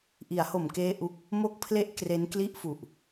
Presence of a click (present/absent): absent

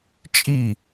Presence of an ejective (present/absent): present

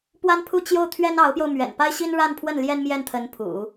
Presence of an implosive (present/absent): absent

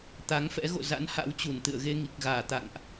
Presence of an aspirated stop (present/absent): absent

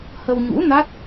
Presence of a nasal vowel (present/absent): absent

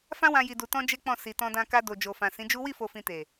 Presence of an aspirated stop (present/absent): absent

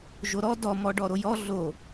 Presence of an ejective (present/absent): absent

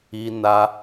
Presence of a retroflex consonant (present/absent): absent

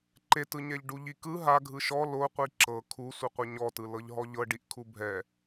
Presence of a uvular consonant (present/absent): present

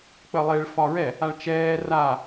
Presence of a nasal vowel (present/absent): absent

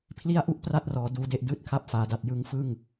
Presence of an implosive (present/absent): absent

